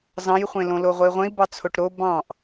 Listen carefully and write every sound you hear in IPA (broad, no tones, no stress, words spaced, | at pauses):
zɑ̃jχʷẽlõlo ʁʷei̯ʁʷẽi̯bɑ t͡sʰoʈɾo bɑ̃ʔ